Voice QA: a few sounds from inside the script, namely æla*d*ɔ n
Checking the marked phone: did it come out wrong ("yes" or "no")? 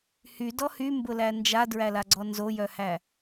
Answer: yes